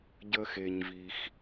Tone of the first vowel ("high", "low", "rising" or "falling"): high